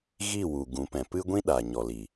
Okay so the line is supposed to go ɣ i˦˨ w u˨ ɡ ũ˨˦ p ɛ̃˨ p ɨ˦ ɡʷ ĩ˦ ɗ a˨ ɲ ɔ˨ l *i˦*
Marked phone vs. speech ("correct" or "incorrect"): incorrect